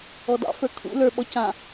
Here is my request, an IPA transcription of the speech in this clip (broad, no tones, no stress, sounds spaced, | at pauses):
ɔ d ɑ̰ f ə˞ kʰ ṵ l ə˞ ɓ ɔ c ã